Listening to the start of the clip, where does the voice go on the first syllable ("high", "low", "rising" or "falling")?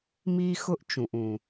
high